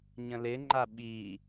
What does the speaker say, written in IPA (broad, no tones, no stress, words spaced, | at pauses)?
ɲə̃lɪŋ͡ǃa ɓi